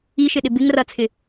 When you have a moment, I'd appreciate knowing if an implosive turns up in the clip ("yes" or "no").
yes